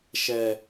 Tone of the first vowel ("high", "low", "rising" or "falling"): high